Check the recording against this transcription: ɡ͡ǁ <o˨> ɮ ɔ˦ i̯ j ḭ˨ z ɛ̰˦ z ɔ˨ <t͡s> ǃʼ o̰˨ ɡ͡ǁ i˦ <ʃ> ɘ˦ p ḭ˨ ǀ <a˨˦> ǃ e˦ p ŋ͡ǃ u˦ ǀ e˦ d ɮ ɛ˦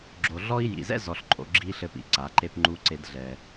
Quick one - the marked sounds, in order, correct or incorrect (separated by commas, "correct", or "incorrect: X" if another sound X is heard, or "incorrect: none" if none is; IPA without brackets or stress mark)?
correct, incorrect: ɬ, incorrect: ɬ, correct